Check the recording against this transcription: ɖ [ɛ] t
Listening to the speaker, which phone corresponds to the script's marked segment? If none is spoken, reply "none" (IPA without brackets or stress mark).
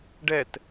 ɛ